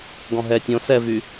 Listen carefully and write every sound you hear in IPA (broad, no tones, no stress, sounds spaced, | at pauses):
ɡ ɔ̃ ɦ ɛ tʲ õ s ɛ v y